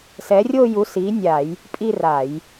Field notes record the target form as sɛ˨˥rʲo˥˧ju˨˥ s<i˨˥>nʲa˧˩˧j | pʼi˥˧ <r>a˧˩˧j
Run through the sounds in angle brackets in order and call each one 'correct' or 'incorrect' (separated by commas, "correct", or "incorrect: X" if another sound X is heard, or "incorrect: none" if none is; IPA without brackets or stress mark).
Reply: correct, correct